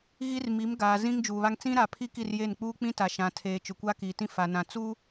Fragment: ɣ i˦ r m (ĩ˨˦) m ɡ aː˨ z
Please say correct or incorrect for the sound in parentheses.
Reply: incorrect